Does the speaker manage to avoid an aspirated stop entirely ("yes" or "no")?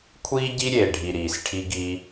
no